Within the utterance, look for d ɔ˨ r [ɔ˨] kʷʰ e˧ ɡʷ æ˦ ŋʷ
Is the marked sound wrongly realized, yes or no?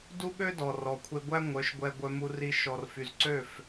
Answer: no